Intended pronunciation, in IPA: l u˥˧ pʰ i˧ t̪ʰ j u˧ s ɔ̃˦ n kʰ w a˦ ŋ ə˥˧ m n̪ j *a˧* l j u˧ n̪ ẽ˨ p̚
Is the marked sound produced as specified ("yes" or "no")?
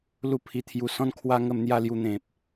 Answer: no